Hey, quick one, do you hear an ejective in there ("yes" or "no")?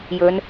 no